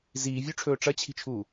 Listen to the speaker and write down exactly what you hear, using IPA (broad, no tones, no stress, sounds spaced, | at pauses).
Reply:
z iː vʲ ʉ ʈ͡ʂʰ ɵː ʈ͡ʂ ɐ t͡ɕʰ i̤ t͡ʃʰ uː